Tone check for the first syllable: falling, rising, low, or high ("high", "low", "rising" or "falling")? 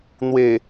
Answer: low